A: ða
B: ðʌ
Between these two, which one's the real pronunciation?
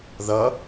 B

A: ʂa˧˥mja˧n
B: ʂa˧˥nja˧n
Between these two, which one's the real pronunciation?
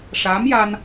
A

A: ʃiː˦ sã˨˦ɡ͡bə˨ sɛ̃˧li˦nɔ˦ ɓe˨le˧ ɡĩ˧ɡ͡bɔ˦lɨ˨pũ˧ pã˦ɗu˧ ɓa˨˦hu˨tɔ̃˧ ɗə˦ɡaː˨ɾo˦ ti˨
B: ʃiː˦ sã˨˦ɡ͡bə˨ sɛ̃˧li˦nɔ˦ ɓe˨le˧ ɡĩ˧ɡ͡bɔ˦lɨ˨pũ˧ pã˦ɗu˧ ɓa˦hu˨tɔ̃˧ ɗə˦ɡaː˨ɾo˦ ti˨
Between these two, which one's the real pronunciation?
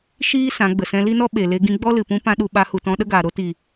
A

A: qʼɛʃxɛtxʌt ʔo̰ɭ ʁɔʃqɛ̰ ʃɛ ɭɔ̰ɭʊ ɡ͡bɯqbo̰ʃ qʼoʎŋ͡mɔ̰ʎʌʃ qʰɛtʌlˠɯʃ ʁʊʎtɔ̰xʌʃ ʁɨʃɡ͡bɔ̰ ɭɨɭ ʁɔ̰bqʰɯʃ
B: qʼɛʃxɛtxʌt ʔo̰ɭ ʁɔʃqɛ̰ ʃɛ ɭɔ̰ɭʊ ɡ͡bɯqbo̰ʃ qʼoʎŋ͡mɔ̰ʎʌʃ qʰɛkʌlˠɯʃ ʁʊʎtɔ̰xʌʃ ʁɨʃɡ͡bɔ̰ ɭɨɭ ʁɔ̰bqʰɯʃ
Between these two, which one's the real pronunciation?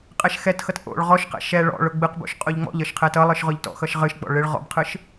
A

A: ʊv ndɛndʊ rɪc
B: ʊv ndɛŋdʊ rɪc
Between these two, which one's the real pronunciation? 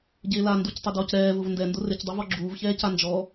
A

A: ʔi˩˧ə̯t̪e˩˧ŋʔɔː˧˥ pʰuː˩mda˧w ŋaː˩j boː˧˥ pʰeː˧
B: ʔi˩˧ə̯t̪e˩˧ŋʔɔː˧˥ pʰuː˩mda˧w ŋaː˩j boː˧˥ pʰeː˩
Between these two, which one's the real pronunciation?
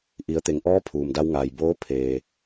A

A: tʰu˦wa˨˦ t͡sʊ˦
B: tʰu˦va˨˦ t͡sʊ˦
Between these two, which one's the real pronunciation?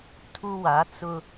A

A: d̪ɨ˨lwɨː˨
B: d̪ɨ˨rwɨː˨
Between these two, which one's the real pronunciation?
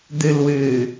A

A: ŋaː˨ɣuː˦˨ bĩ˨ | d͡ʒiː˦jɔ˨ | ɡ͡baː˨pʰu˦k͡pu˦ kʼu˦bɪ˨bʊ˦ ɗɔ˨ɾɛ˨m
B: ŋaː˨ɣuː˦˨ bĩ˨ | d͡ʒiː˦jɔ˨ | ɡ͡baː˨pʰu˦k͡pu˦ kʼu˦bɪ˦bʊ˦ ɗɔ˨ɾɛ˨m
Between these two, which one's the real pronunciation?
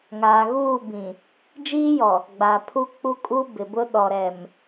A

